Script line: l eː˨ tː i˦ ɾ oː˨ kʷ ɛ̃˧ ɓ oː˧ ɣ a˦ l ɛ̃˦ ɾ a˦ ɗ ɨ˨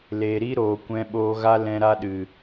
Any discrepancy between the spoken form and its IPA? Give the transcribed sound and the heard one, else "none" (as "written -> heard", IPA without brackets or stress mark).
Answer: tː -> ɾ